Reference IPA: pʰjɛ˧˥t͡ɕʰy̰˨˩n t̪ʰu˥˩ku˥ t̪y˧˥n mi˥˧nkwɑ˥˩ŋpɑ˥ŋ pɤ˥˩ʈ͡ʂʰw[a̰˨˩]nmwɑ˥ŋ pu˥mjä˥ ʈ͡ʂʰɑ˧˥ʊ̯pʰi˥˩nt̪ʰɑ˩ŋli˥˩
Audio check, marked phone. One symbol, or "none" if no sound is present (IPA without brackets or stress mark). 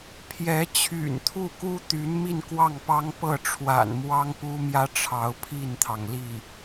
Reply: a̰˨˩